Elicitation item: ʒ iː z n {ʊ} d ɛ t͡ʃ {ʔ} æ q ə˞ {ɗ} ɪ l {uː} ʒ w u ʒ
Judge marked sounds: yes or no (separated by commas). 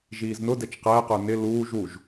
yes, no, no, yes